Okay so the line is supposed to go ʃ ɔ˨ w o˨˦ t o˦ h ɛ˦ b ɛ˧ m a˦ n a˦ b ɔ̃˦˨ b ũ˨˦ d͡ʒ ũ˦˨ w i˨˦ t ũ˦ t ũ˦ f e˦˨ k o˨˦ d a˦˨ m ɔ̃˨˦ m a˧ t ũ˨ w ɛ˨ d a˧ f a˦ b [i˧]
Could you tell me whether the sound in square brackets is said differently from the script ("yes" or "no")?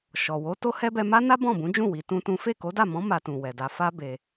yes